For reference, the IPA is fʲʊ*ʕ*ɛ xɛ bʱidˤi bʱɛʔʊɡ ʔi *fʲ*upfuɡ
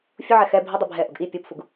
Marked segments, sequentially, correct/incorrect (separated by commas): correct, incorrect